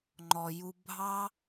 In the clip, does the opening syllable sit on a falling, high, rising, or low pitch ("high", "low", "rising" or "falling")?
low